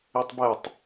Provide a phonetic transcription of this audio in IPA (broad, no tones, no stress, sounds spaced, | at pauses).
e tˤ b ɛ tˤ